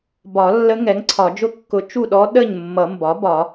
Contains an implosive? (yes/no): yes